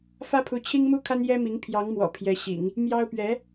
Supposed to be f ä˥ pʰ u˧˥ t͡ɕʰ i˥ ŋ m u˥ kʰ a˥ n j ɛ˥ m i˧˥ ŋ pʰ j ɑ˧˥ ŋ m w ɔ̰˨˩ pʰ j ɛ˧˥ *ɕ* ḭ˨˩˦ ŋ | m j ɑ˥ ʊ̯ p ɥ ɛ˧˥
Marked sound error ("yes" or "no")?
no